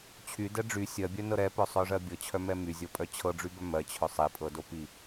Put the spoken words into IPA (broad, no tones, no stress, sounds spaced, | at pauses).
t͡ɕʰ y d ɛ ɖ͡ʐ y sʲ ɜ bʲ œ n ɤ ɾ ɛ p œ sˤ œ ʐ ɜ bʲ ɤ t͡ɕʰ œ m ɛ m y zʲ ɤ pʼ œ t͡ɕʰ ɤ ɖ͡ʐ y b œ m ɜ t͡ɕʰ œ sˤ i pʼ ɤ d o p i